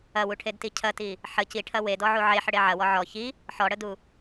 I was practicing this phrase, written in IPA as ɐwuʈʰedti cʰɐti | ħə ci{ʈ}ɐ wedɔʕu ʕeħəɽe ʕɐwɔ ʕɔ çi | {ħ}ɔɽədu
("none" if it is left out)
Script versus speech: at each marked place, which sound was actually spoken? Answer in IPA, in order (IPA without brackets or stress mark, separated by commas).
ʈʰ, ħ